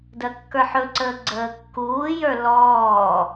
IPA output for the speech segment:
d ɜ kː ə˞ ħ ɵ ǀ əː ɡ͡ǀ əː kː uː j ə˞ l ɔː

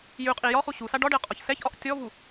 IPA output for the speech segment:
j ʉ qʼ i j ɒ χ u ɕ u s a ɖ ɒ ɖ e ə̯ qʼ ɒ ç s ɛ ç ʔ ɒ ʔ tʲ ɔ v u

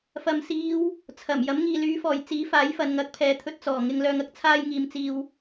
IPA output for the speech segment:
f ɐ˨ m s iː˨˧ w | t͡sʰ ɐ˨˩ m j ɐ˨˥ m ŋ iː˨ l yː˨˥ f ɔː˨˩ j t͡s iː˨˥ f aː˨˥ j f ɐ˨ n ŋ ɐ˨˥ k̚ pʰ ɛː˨ t̪ʰ ɵ˧ t̚ t͡s ɔː˨˩ ŋ ɪ˨ ŋ l œː˨ ŋ ɐ˥ k̚ t͡sʰ aː˧ j ŋ iː˨ m t͡s iː˨ w

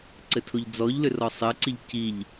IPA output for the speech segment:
ǀ ɘ tʰ o ʎ d͡z ɔ ʎ l ʏ r ɔ sˤ ɘ ǀ i ʎ c i ʎ

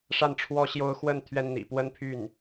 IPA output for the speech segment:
ʂ a˥˩ n ʈ͡ʂʰ w ɔ˥ ɕ j o˥ ʊ̯ x w ə˥˩ n t̪ʰ ɥ ɛ˥ n n̪ ḭ˨˩ p w ə˥ n pʰ y˥˩ n

